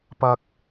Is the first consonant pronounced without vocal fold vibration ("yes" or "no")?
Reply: yes